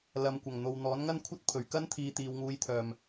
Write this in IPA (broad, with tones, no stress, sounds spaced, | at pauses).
l ɐ˨ m kʷ ɐ˨˩ ŋ n̪ o˨ w n̪ ɔː˨˥ n ŋ ɐ˥ n kʷʰ ɐ˥ t̚ pʰ ɵ˨˩ ɥ k ɐ˥ n t̪ʰ iː˨˧ t̪ iː˨ w ŋ uː˨˧ j t̪ʰ œː˨˩ m